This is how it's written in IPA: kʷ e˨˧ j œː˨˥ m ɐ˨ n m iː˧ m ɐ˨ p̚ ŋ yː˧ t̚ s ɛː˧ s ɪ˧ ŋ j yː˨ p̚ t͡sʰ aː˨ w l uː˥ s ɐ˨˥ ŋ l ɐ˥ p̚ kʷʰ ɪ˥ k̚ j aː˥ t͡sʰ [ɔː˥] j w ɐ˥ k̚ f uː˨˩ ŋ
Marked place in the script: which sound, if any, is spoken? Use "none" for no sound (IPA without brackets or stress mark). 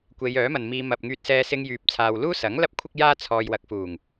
ɔː˧